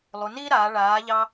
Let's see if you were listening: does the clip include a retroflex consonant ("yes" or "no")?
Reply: yes